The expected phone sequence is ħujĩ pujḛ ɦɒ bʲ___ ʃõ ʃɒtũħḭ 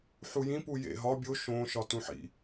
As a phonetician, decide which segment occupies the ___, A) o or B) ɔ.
A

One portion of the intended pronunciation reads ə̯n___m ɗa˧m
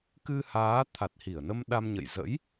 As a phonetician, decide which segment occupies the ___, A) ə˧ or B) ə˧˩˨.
A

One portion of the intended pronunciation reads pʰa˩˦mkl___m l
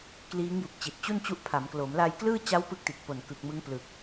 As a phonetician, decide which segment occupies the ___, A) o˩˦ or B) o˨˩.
A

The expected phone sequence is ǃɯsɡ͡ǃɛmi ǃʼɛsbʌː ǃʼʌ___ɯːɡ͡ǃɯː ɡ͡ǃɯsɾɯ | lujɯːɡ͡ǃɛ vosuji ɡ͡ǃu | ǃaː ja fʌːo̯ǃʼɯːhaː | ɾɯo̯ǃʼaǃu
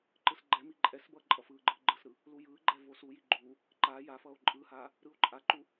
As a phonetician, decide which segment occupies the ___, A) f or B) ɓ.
A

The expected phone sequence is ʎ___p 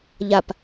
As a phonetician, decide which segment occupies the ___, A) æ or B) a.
B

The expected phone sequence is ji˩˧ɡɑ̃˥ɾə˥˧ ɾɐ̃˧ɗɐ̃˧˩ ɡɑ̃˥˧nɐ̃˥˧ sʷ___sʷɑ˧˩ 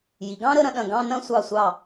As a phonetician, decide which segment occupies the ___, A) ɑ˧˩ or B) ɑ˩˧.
A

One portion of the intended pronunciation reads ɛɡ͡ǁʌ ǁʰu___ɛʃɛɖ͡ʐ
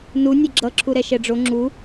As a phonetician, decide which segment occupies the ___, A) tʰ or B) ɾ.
B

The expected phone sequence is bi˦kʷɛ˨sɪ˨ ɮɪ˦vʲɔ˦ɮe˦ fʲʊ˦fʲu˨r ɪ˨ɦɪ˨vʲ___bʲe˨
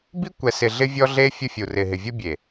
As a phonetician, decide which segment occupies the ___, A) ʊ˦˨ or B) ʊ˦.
B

